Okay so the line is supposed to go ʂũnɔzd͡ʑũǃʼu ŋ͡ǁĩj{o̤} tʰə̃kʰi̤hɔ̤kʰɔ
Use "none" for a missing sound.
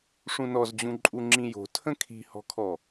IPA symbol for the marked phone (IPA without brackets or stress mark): o̤